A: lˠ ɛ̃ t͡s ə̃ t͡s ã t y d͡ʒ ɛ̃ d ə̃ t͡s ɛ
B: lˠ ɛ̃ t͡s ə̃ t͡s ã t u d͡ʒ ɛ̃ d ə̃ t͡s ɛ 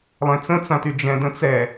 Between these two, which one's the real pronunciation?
A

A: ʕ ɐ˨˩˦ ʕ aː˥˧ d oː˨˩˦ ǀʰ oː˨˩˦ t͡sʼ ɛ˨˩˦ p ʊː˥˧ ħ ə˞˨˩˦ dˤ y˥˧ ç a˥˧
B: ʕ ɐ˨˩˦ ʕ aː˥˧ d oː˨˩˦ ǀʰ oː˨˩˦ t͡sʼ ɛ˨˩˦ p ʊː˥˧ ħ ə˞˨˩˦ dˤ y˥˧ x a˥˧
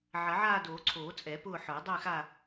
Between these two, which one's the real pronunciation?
B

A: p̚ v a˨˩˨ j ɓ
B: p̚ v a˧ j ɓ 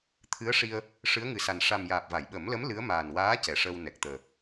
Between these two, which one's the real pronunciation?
A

